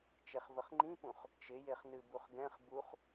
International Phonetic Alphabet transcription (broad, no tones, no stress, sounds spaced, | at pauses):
t͡ʃ e χ v ə χ ŋ͡ǃ ĩ p ũ χ | t͡ʃ ɪ j e χ n ɨ b u χ ɡ ɛ̃ χ b u χ